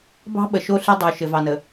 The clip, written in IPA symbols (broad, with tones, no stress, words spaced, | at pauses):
bɑ̤˦ɓə˨ ʃo˦ ɬi˦dˤu˨ ʃɘ˨vɑ˨nə˨